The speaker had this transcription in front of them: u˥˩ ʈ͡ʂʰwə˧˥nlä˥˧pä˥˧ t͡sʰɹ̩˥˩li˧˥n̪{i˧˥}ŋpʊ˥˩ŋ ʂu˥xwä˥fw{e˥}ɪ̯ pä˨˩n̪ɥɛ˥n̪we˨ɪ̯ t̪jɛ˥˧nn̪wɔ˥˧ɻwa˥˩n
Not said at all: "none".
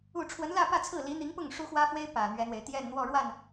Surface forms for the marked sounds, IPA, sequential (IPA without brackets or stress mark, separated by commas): i˧˥, e˥